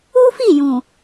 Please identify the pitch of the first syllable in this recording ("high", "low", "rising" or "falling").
high